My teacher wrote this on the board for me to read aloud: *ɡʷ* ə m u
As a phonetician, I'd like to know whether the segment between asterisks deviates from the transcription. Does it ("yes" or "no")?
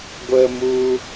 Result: no